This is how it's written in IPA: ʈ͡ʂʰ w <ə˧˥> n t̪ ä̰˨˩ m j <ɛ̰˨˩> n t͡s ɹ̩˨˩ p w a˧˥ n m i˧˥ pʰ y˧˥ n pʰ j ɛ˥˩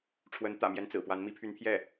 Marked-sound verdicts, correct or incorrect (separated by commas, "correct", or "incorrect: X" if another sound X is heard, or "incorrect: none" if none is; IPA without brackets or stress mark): correct, incorrect: ɛ˧˥